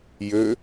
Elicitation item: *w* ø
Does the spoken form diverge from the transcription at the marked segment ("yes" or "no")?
yes